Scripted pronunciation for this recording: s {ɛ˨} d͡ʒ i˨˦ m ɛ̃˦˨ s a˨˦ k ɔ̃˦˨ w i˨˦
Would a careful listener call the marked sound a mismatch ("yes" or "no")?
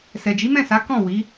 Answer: no